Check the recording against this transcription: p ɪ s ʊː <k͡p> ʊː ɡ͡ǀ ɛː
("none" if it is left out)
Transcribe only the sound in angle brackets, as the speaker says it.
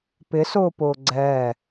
p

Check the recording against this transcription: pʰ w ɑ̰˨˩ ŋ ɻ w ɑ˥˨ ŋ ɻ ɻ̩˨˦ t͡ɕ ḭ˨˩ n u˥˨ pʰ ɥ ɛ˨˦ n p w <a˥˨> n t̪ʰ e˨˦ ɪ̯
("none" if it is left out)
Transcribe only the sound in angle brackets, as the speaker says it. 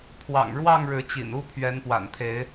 a̰˨˩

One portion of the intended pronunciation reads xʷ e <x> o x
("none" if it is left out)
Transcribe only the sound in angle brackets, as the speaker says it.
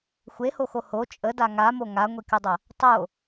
h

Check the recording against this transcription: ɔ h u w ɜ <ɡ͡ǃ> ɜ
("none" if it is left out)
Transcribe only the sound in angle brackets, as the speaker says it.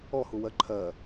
ǃʰ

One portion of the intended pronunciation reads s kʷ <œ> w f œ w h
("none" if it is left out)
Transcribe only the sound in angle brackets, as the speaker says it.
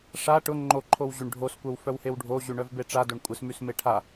œ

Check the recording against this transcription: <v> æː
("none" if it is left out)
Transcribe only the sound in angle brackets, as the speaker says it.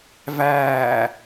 v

